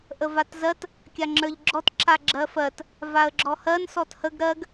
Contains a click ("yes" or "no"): yes